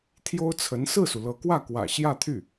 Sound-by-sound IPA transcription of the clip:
t̪ʰ j o˥ ʊ̯ t͡sʰ ə˧˥ n s ɹ̩˥˩ s u˩ l ɤ˧˥ k w ä˥˩ k w ä̰˨˩ ɕ j ä˥˧ t̪ʰ y˥˩

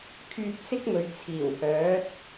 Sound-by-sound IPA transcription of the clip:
kʰ yː˧ p̚ s ɪ˥ k̚ m ɵ˨ ɥ t͡sʰ iː˨˩ w h œː˨˥ t̚

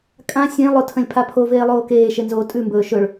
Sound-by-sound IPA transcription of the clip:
kʼ ã sʲ ẽ lˠ o tʰ ə̃ lʲ pʰ a pʰ o v eː lˠ oː k eː ʃ e n z oː tʼ ʉ m b ɵː ʃ ɵ ɭ

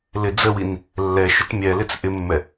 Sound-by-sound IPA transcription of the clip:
l ɪ d͡z ə w i n | lː ɛ ʃ ʊ t mʲ ɛ l ɪ t͡s ʔ ɪ mː ɛ

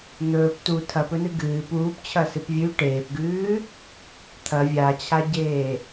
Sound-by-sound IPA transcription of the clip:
n̪ ɵː p t u tʰ ɐ p ɵ n ɨ ɡ ɨː p uː p t͡ɕʰ ɐ s ɨ p vʲ ʉ ʈ eː p ɡ ʉː | t̪ʰ ɐ vʲ a t͡ɕʰ a ɟ eː

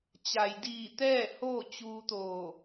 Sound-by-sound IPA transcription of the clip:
t͡ɕ a˩ j d iː˧˩ t̪ ɛː˥˨ h oː˥˨ t͡ɕ uː˧ t̪ oː˧˩

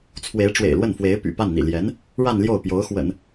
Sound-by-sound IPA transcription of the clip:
t͡sʰ w e˧˥ ɪ̯ ʈ͡ʂ w ḛ˨˩ ɪ̯ l w ə˥˩ n f w e˧˥ ɪ̯ p y̰˨˩ p a˥˩ n n̪ ḭ˨˩ l j ɛ˧˥ n | ɻ a˥˧ n l j o˥˩ ʊ̯ p j o˧˥ ʊ̯ x w ə̰˨˩˦ n

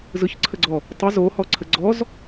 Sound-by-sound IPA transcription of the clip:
z ɯ ç ǀʰ ə ɡ͡ǀ ɔ | tˤ ɯ z o h ɔ ǀʰ ə ɡ͡ǀ ɔ z

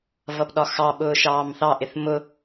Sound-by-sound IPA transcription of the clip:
v ʌ p ɗ ɒ x ɑ ɓ ʊː ʃ ɑː m θ ɑ ʔ ɪ θ m ʊ

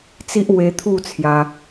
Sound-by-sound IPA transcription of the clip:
t͡s i˦ ʔ w e˧ t̪ʰ u˥˧ t͡sʰ j a˧

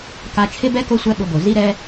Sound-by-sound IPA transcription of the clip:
k a˧ t͡ʃʰ ɪ˦ b ɛ˦ k o˦ sʷ ɛ˦ ɓ ʊ˧ b o˨ z i˧ ɾ ɛ˧

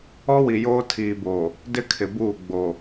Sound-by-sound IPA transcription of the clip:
ɔ˦ w i˨ j oː˦ tʰ iː˨ b o˨ | d ɪ˦ kʰ ɪ˨ b uː˦˨ ɡ͡b o˨

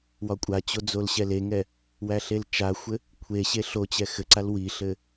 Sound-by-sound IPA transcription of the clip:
w ɒ kʷʼ a t͡ɕ o d͡z o l ɕ ɛ l e ŋ ɛ | w æ ɬ e l t͡ʃ a xʷ ɘ | kʷʰ e ɕ e ɬ o t͡ɕ ɛ x ɘ ǀ a l w i ɬ ɘ

